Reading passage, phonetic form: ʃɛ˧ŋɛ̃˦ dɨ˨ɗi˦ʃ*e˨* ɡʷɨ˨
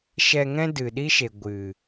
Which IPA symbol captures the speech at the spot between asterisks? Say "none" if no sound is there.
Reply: e˨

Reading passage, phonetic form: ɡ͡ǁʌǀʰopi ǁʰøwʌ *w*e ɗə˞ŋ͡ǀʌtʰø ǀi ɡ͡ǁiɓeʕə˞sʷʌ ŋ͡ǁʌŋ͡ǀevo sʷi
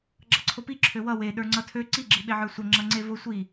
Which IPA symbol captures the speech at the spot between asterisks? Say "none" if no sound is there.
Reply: w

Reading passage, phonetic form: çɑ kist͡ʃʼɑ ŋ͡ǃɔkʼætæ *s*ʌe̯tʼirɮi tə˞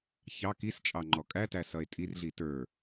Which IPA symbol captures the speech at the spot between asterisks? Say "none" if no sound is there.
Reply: s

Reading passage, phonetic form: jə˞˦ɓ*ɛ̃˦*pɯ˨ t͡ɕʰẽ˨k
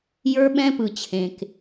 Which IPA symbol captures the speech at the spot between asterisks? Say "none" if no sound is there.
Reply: ɛ̃˦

